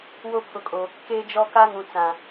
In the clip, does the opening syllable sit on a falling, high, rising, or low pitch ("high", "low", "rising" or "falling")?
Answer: high